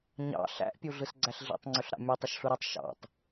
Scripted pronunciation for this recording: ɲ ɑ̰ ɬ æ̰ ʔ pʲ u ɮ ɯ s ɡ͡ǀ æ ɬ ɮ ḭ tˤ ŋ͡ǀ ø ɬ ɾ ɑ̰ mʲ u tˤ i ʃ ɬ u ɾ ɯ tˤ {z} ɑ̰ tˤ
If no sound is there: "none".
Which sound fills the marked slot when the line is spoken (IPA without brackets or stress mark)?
ʃ